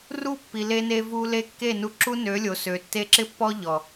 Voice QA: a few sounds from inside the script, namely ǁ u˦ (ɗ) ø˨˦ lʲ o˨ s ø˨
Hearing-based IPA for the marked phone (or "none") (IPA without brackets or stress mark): n